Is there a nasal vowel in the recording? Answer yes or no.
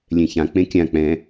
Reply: yes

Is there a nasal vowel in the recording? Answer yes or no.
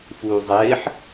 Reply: no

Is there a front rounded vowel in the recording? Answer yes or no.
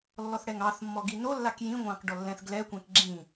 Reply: no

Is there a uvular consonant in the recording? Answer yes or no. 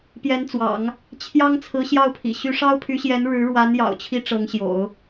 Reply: no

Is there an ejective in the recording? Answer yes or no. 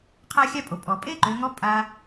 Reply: yes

